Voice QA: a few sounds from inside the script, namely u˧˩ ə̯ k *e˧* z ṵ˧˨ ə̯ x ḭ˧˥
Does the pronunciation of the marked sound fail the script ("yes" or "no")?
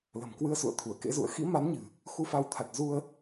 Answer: yes